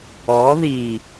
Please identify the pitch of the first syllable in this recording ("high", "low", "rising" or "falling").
rising